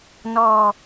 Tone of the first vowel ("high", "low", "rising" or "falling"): high